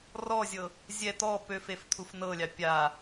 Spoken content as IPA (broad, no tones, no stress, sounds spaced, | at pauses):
r ɔ zʲ ɤ | zʲ ɛ t̪ ɔ p ø f e f t̪ʰ u f n ɤ lʲ ɑ pʲ a